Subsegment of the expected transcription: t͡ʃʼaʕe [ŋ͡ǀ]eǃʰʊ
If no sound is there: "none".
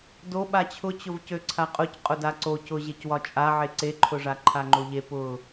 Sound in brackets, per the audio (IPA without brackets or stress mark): ǀ